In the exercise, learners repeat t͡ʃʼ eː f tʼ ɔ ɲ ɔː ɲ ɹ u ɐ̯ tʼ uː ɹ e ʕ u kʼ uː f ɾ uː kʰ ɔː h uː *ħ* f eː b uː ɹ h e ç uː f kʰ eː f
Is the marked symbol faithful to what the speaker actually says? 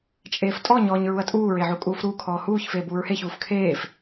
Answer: no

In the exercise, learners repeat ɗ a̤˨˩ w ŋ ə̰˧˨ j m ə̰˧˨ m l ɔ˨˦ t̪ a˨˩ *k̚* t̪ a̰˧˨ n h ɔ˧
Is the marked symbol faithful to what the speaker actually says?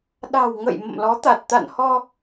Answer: no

